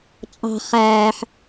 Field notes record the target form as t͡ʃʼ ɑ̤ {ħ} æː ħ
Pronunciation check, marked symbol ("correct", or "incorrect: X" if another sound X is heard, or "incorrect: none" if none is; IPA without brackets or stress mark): incorrect: χ